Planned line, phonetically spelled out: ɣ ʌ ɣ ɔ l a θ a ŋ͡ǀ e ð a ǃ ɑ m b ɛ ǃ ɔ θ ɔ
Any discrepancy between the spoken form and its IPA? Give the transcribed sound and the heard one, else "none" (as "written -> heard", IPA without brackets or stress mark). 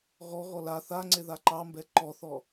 ʌ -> ɔ